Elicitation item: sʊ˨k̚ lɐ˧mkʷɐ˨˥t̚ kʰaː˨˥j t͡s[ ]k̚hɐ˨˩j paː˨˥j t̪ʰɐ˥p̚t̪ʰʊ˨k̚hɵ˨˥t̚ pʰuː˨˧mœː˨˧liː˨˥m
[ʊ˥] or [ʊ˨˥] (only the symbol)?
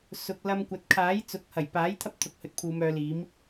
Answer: ʊ˨˥